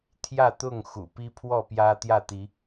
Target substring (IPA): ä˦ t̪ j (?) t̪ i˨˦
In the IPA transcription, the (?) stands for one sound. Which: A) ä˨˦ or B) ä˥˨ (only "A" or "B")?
B